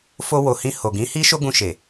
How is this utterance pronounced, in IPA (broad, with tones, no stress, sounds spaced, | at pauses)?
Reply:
f o˧ w o˨ h ĩ˧ h o˨ ɡ ĩ˨˦ h i˦ ʃ o˦ ɡ ũ˧ ʃ e˨